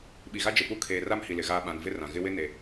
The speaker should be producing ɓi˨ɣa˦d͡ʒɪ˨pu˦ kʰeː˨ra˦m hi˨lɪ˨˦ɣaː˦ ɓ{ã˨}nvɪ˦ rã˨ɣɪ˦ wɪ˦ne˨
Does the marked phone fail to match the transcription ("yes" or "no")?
no